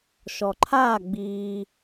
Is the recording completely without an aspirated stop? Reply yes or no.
no